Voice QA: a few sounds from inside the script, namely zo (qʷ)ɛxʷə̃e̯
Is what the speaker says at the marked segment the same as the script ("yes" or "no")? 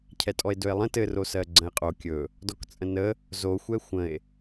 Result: no